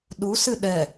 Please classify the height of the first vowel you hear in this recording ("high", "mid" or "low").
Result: high